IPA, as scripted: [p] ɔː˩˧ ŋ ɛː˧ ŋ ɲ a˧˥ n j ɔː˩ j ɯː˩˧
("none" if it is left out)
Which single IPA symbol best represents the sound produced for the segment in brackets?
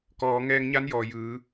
k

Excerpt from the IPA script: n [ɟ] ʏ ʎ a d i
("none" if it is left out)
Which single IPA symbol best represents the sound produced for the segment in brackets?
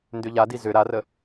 d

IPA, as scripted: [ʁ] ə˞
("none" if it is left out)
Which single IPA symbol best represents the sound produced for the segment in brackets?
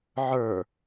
ʕ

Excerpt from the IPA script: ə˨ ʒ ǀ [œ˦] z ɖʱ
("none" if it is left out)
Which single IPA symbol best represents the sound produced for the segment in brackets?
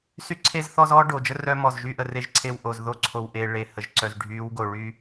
œ˨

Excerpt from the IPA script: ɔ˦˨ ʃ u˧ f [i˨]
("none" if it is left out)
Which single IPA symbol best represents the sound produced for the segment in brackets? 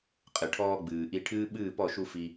i˧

